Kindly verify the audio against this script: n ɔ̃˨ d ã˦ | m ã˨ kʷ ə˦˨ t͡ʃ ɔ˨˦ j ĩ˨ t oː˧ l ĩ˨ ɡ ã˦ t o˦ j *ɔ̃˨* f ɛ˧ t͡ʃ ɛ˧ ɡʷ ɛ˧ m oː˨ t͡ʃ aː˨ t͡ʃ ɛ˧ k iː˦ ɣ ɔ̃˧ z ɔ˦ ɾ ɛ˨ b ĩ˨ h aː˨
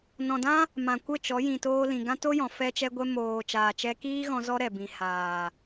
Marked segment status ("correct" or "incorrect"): correct